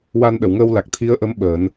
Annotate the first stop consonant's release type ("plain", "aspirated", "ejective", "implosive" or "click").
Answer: implosive